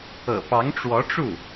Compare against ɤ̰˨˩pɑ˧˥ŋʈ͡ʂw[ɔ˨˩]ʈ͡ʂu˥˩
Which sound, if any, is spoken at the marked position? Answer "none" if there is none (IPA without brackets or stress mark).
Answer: ɔ˧˥